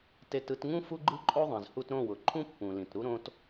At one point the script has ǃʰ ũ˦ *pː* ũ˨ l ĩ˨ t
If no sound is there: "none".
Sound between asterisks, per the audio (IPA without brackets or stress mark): pː